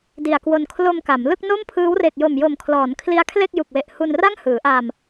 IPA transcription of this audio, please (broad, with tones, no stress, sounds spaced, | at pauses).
d i˨˩ a̯ k w o˧ n kʰ l o˧ m k a˩˦ m l ɯ˥˩ k̚ n o˥˩ m pʰ ɯː˦˥ w r e˨˩ k̚ j o˨˩ m j o˨˩ m kʰ l ɔː˩˦ n kʰ l i˦˥ a̯ kʰ l e˥˩ k̚ j u˨˩ k̚ w e˨˩ ʔ h u˧ n r a˥˩ ŋ h ɯː˩˦ ʔ a˧ m